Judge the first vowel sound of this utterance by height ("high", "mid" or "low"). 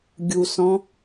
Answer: high